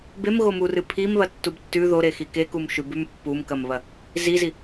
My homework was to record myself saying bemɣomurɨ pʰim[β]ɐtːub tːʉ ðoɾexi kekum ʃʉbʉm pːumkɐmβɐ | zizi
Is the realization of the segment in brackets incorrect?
no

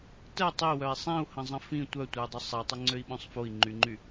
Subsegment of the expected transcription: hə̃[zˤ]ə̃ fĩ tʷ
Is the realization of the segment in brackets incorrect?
no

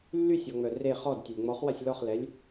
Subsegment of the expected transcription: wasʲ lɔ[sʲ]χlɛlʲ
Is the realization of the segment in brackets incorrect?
yes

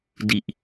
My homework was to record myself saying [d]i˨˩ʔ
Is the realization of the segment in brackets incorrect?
no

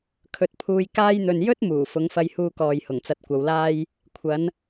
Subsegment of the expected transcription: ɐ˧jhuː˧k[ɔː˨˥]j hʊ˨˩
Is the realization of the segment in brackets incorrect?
yes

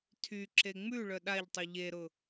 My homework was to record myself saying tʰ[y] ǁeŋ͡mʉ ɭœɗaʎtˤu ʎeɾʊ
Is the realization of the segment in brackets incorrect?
no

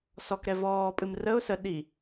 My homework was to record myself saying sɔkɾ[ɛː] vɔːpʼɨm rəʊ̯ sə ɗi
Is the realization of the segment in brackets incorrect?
yes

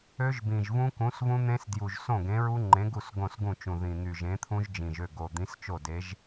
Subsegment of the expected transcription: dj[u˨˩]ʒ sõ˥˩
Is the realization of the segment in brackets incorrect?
no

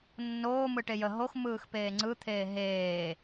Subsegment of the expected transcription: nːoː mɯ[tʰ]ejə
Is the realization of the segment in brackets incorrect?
yes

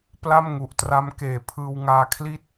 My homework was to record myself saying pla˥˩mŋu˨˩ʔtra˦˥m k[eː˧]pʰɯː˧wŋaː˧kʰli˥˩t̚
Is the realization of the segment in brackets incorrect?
yes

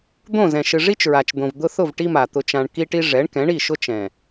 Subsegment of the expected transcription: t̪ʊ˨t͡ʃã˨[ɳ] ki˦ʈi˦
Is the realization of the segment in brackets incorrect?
no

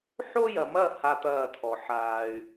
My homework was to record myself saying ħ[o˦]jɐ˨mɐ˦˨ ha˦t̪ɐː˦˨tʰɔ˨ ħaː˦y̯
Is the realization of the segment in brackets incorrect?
no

